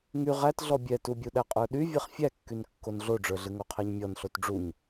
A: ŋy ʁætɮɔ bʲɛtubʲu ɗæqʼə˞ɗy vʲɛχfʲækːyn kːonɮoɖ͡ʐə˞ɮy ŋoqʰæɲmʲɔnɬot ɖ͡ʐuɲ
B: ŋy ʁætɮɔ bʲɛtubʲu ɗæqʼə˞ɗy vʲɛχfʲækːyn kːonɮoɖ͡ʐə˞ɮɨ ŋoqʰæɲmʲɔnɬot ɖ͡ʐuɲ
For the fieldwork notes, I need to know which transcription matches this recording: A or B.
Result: B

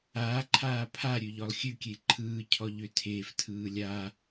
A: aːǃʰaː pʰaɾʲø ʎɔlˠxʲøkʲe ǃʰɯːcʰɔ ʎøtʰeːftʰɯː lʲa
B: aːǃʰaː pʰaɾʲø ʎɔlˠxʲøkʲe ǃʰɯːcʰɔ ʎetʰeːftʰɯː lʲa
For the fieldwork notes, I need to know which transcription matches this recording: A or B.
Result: A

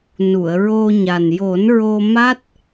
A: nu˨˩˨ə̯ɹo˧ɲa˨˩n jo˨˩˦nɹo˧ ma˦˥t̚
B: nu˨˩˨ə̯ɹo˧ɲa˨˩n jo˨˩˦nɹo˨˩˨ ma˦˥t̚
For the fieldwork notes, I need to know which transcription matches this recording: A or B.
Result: A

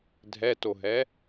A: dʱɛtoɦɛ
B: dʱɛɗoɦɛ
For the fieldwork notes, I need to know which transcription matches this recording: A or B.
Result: A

